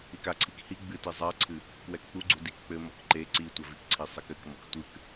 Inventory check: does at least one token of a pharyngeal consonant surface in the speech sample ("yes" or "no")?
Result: no